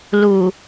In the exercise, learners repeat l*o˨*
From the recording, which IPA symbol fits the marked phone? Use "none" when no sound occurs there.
u˨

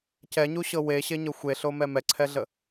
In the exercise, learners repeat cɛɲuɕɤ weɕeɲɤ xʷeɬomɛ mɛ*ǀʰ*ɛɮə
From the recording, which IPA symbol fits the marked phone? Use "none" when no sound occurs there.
ǀʰ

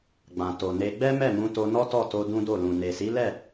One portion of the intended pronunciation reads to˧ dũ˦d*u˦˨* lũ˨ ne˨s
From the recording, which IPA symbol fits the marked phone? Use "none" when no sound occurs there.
o˦˨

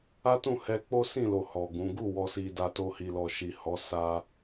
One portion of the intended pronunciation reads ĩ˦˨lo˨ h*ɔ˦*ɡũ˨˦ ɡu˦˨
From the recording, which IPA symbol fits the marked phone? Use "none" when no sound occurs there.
ɔ˨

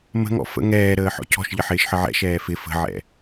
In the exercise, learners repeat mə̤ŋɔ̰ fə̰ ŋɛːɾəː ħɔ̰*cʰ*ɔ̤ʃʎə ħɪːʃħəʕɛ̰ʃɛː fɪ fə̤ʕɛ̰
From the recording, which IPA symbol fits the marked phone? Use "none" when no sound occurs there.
cʰ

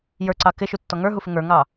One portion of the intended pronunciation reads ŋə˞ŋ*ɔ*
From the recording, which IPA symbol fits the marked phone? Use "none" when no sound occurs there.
ɑ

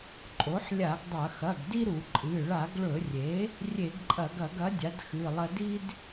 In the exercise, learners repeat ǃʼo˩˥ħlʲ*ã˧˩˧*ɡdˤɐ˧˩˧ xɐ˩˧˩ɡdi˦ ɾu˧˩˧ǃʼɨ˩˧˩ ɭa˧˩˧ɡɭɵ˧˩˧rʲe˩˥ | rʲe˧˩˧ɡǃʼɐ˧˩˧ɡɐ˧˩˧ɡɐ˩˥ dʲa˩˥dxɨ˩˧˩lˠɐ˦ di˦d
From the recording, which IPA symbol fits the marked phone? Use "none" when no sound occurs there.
a˧˩˧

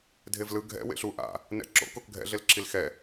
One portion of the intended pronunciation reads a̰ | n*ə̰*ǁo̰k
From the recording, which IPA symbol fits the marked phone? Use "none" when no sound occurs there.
ɛ̰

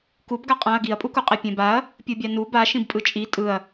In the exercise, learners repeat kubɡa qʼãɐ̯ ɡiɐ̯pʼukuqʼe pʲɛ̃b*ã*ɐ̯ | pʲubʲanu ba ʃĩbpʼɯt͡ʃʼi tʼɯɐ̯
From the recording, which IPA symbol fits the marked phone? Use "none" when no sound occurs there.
a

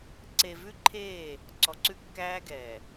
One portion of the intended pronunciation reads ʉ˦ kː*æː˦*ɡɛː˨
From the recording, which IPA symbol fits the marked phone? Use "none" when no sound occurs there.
æː˦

